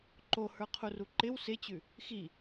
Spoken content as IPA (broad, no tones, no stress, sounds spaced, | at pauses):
ǃ o h ə˞ qʰ u r u ǃ ɪ w s ɪ t͡ɕ ʉ | x i